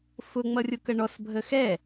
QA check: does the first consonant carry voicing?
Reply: no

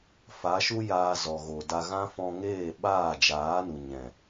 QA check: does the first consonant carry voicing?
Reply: no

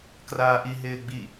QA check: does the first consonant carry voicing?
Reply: no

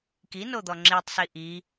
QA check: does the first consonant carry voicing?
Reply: no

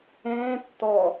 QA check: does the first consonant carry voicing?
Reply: no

